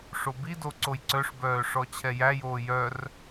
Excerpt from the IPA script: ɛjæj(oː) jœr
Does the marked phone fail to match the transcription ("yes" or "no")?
no